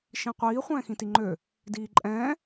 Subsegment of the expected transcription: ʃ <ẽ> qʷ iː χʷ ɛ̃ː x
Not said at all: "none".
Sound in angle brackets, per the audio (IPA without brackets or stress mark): ĩ